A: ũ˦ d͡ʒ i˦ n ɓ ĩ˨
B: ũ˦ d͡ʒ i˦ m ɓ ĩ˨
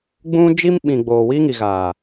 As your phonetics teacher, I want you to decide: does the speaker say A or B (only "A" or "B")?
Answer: B